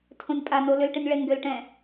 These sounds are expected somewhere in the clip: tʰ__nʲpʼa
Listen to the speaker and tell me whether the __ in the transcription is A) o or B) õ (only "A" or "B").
B